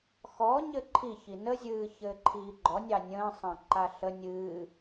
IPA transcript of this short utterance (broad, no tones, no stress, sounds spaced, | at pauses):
x ɔ ɲ ɘ ǃʰ i ç i n ə zʲ ɨː ç ɘː ǃʰ iː ɡ͡ǃ ɔ nʲ ɑ nʲ ə̃ː sˤ ɑ̃ ǃ a ɬ ə nʲ ɨː